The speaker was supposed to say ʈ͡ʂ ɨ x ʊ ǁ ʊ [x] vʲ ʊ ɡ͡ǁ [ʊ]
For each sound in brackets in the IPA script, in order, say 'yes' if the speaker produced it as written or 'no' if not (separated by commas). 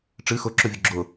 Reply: no, yes